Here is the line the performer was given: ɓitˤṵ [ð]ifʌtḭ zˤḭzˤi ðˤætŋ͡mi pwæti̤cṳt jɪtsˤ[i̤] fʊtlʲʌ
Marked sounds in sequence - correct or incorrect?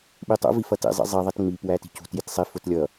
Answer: incorrect: v, incorrect: i

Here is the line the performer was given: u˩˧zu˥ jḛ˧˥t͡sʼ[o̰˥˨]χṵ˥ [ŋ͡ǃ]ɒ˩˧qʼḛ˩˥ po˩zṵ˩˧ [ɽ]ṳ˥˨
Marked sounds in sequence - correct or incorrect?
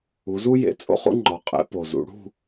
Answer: correct, correct, correct

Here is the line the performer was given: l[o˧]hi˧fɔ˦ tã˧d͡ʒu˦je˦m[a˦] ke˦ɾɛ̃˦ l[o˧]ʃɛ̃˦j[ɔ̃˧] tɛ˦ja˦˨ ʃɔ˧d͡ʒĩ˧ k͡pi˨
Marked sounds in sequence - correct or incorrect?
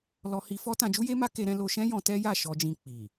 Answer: incorrect: ɔ˧, correct, correct, correct

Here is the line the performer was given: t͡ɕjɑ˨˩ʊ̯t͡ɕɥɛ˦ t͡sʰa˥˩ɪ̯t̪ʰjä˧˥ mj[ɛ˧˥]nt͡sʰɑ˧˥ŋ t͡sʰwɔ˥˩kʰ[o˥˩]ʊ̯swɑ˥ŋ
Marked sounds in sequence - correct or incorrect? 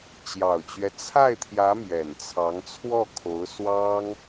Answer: incorrect: ɛ˨˩, incorrect: o˧˥

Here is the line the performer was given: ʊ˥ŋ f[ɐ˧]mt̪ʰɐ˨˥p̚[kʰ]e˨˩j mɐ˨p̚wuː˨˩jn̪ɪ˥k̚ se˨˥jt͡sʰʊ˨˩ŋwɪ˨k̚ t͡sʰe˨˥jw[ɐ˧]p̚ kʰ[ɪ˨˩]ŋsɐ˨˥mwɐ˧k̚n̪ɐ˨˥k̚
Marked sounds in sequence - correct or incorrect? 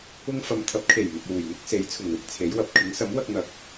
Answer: incorrect: ɐ˨, correct, incorrect: ɐ˨, incorrect: ɪ˨˥

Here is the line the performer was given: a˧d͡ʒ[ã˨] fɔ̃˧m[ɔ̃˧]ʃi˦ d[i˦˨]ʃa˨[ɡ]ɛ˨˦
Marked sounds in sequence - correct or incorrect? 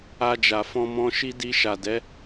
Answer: incorrect: a˨, correct, incorrect: i˧, incorrect: d

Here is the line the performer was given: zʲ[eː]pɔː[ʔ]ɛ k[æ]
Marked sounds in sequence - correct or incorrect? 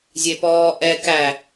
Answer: incorrect: e, correct, correct

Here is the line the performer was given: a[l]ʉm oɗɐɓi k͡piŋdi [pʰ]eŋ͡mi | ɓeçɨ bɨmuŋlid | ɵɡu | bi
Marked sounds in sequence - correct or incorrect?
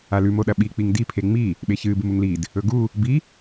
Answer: correct, correct

